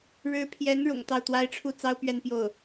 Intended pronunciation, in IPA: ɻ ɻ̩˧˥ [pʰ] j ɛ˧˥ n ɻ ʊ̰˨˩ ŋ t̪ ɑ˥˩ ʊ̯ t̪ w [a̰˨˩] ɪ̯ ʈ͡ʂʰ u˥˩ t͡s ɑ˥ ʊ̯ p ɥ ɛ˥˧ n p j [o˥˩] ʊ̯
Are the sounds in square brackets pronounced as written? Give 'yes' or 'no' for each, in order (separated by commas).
yes, no, yes